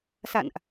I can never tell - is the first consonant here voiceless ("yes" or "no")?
yes